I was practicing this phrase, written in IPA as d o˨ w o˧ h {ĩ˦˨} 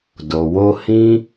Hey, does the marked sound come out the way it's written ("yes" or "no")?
no